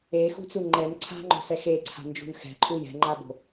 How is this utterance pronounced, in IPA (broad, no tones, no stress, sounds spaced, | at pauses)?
e x ṳ t͡s u ŋ͡ǃ ɛ n ǀʰ a̤ ŋ͡ǃ o̤ s ɛ x e ǀʰ a̤ n d͡ʒ ṳ n x ɛ̤ ǃʰ u j ɛ̤ ŋ͡ǃ a b o̤